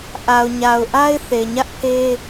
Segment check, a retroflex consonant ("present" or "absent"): absent